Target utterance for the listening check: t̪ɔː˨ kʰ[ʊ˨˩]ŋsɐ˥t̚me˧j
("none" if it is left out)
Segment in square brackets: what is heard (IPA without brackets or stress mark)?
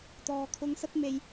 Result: ʊ˧